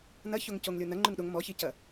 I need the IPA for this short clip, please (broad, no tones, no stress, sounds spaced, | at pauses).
n ɐ ç o ŋ c o ŋ lʲ o n ɐ ŋ͡ǃ ʉ ŋ ɗ o ŋ m ɔ ç i c ɐ